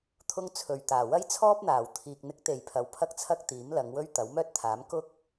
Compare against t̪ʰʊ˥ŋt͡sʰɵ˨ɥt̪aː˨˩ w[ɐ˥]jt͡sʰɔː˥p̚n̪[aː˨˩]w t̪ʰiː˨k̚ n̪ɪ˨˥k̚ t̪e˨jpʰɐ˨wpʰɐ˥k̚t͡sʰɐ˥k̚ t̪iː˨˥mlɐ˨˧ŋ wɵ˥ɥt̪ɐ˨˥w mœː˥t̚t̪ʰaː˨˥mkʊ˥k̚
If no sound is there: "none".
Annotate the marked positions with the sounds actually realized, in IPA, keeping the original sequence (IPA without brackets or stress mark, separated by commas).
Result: ɐ˥, aː˨˩